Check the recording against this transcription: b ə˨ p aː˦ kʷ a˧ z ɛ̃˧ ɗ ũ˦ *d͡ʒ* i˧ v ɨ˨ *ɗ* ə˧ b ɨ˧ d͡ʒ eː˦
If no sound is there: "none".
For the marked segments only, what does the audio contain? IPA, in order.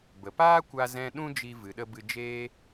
d͡ʒ, ɗ

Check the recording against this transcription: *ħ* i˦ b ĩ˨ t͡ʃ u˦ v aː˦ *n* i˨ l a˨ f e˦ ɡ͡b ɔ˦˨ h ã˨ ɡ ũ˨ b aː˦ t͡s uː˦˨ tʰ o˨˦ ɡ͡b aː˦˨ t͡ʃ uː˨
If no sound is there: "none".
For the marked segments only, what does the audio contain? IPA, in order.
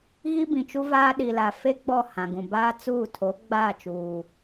ɣ, ɗ

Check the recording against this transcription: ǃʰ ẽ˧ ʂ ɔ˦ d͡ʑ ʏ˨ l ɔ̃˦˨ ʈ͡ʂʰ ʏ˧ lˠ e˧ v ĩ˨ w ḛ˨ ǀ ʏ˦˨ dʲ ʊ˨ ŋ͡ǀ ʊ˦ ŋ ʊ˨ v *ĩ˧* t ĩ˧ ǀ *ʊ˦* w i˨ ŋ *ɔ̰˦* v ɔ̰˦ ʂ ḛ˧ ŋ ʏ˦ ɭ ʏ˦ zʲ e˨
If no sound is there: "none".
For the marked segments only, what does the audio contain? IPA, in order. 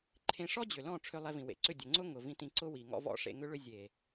ĩ˧, ʊ˦, ɔ̰˦

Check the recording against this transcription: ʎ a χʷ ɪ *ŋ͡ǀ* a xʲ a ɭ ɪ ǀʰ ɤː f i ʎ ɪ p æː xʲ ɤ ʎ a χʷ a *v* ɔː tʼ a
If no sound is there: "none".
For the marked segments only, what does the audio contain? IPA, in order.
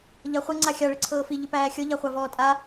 ŋ͡ǀ, v

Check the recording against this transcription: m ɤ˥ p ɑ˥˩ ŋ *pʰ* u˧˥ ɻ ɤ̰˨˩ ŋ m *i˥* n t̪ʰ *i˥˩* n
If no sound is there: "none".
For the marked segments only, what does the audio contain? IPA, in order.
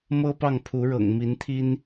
pʰ, i˧˥, i˥

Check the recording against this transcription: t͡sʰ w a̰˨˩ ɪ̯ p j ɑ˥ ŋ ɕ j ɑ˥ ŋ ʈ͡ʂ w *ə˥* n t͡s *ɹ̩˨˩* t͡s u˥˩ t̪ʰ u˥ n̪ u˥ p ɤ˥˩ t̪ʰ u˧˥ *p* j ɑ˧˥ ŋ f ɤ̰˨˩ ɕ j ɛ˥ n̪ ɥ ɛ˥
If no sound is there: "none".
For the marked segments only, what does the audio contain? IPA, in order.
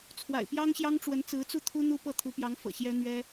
ə˧˥, ɹ̩˧˥, p

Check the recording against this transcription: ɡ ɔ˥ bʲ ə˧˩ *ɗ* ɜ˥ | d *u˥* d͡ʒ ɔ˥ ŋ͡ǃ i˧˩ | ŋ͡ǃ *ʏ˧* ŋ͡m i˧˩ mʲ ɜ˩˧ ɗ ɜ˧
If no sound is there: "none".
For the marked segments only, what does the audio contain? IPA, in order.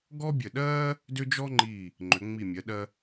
ɗ, ʏ˥, ʏ˩˧

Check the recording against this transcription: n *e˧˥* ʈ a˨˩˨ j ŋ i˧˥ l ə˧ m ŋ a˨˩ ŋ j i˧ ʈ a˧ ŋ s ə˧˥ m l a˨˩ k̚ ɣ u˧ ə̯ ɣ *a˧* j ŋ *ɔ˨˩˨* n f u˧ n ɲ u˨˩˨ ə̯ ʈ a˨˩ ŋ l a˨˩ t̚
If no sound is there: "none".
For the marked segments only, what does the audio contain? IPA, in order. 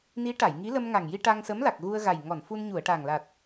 i˧˥, a˨˩, ɔ˨˩˨

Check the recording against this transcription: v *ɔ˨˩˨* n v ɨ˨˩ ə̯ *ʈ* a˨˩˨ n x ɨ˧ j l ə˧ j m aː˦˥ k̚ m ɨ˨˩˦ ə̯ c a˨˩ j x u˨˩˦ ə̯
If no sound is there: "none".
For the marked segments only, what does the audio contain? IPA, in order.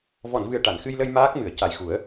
ɔ˨˩˨, ʈ

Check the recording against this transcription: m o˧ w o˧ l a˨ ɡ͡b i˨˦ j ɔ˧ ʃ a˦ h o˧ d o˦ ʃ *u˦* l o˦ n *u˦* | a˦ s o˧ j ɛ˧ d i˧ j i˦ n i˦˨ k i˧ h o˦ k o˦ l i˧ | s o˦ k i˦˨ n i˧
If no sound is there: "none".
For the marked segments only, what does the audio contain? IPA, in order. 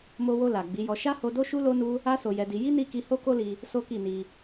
u˦, u˦

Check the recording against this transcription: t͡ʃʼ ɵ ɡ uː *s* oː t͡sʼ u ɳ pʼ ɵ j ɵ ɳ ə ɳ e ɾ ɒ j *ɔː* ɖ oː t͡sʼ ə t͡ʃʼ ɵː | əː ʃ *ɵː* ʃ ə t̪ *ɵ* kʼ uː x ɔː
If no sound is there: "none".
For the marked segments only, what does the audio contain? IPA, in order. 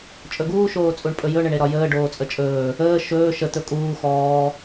ʃ, əː, ɵː, ɵ

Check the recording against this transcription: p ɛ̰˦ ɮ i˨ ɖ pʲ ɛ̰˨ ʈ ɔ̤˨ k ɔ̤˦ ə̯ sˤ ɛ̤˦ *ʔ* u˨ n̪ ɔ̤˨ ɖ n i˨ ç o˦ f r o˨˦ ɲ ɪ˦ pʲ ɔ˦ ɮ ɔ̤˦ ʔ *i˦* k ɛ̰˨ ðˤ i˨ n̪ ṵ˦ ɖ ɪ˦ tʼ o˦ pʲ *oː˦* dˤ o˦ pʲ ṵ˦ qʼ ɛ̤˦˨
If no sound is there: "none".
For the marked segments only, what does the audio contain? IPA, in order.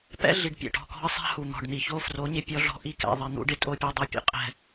h, i˦, o˦

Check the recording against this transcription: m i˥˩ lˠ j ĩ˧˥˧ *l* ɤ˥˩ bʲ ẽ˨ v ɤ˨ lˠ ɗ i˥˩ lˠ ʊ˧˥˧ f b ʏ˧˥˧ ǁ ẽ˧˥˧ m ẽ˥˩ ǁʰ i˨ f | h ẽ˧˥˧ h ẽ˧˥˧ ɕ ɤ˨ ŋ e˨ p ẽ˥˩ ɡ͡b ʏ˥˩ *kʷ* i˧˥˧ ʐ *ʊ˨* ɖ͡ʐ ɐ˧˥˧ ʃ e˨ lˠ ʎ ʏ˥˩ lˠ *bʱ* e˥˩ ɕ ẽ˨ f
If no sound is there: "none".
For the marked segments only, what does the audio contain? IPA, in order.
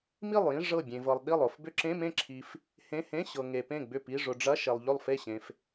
ʐ, p, ʊ˨, f

